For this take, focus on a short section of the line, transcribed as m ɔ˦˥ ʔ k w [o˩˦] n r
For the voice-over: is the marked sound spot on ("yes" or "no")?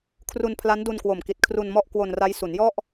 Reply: no